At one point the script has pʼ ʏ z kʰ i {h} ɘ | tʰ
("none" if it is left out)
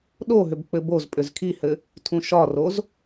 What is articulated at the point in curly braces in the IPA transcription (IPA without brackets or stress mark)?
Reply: h